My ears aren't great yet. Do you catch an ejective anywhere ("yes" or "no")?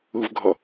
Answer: no